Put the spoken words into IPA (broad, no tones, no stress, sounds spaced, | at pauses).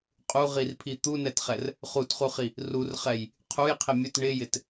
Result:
qʼ u ʁ i r pʰ i t̪ u n ɛ t χ ɛ r | χ u t χ u χ i | r u r χ ɛ j | qʰ u j qʰ ɪ mʲ ɵ t ɳ ɪ j ɪ t